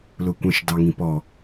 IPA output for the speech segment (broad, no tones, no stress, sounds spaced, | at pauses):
l ʊ kʷ ə̃ ʃ d ɑ ŋ ĩ p ɔ